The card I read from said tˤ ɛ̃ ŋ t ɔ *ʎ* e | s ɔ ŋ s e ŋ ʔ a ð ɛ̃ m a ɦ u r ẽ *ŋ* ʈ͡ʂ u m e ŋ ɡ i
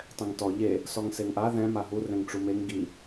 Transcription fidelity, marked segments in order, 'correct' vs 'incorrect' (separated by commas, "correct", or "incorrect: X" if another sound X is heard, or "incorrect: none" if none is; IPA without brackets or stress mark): correct, correct